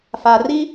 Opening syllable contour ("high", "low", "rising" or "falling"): low